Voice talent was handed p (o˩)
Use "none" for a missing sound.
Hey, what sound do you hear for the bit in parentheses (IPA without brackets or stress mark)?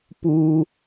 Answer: u˩